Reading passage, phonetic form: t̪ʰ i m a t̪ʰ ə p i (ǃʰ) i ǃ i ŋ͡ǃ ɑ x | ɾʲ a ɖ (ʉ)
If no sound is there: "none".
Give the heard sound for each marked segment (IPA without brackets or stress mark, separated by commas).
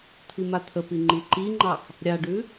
ŋ͡ǃ, ʉ